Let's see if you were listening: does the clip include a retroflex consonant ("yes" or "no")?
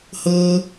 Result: no